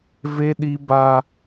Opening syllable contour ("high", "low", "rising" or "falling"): high